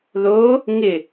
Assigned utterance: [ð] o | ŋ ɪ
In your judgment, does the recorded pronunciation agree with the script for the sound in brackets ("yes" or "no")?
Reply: yes